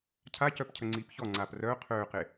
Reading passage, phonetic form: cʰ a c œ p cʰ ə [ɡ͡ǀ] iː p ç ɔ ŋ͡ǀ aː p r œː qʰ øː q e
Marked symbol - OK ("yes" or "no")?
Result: no